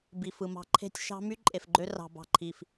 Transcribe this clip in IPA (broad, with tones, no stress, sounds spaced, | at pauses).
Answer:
b i˨ f ɯ˨ m ɑ̤˦ ǃʰ e̤˦ tʲ ʃ ɑ̤˦ m y˦ ǃʼ e˨ f ɡ͡ǃ ø˦ r ɑ̤˨ b ɑ̤˨ ǃʰ i˨ f